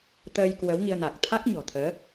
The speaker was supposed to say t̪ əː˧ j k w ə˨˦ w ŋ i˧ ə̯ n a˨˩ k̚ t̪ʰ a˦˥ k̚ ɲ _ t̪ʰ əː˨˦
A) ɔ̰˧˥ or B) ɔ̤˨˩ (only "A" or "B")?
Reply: B